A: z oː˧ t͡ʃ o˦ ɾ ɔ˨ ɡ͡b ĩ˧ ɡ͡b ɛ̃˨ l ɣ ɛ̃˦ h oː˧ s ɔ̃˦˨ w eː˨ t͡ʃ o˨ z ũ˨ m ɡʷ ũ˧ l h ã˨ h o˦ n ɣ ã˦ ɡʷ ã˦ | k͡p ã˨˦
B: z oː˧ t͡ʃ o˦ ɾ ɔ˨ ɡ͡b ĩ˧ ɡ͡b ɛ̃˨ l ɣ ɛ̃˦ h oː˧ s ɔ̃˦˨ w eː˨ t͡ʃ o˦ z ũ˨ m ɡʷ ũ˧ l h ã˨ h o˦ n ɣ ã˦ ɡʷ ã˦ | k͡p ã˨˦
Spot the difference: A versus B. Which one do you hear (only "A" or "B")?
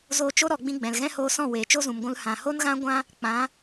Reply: B